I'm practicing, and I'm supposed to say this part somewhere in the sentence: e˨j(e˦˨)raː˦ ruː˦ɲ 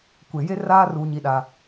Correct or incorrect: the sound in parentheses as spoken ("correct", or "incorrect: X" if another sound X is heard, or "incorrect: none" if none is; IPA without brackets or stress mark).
incorrect: e˦